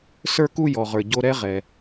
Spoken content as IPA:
sə˞˦ku˦ jɔ˨ʁə˞˨ ɟo˦ ɾɛ˦ʁɛ˨

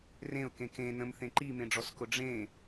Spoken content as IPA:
rẽʊ̯kẽ kẽ nə̃mθẽ ǃimẽɖ͡ʐɔskʊ ɖ͡ʐẽ

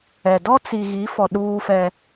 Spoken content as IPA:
ɛ˨ dɔ˦t͡si˨ɣi˨˦fɔ˨ ɗuː˦fɛ˦

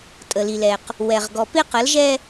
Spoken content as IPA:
tʼə˨li˨lɛ˨q | wɛ˨ʁ ɡɔ˨pɪ˦ qə˨˦lʒɛ˦

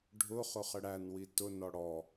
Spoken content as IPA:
ɖʱʊ χʊχəɽænwi tʊnɔ ɽɔ

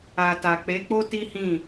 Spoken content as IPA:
a˨ta˨ k͡pe˨˦k͡po˦ti˦hĩ˦˨

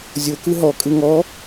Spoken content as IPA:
zʲokɯ ɦɔkʼɯ ŋɔ

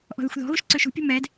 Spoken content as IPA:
ʔɔ̤ðəxʷðɔ̤ɣuʃ ǀøʃṳpʲṳ mɛd

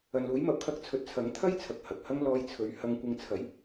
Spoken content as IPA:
ɐ˨nluː˨˥jmɐ˨˥p̚kʰɐ˧k̚ t͡sʰɵ˨˥t̚t͡sʰɐ˨˥ŋt̪ʰɐ˥jt͡sʰɐ˨k̚ hɐ˨k̚hɐ˥ŋ lɔː˧jt͡sʰɵ˨˧ɥ hɐ˧ŋkʷɪ˧ŋ t͡sʰɐ˨˥j

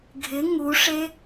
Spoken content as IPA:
ɡʱɪ ŋuʂe

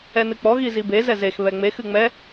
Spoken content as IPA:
ɛnɨk͡pɔ ɣizibe zɛzex βɛŋ͡mex ɨŋ͡mɛ

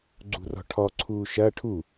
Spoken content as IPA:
ɡ͡ǀṳrɔ̤ʈʰɔǀʰuː ʃɐ ʈʰu

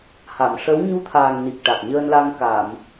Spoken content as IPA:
ha˨˩˨mʂə˧˥w ɲu˧t̪ʰaː˨˩ŋ ni˨˩k̚ ʈa˨˩k̚ɲəː˧nla˧ŋ ka˨˩˨m

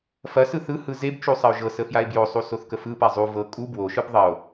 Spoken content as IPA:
fɐsɯ θɯhɯ zebt͡ʃu sˤɐo̯ʒɤsə fjae̯bjosˤu soθkəfɯpa zˤu vɤ kʼu bwoʃɯb ðˤɐo̯

